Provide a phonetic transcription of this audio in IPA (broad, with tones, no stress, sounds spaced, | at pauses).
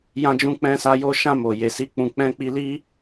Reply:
j ã˦ d͡ʒ ũ˦ k͡p ɛ̃˦ s a˦ j o˧ ʃ ã˧ m o˨ j e˨ s i˨˦ k͡p ũ˧ k͡p ɛ̃˦ k͡p i˦ l i˦